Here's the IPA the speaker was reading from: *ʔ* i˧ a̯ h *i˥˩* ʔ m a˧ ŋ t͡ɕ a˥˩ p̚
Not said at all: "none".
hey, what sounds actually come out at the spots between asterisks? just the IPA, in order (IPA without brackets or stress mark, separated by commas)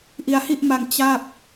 ʔ, i˥˩